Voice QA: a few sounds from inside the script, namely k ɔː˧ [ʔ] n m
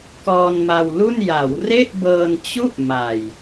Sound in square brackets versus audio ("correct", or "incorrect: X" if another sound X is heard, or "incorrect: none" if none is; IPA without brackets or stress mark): incorrect: none